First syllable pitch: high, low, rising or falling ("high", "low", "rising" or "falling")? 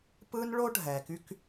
high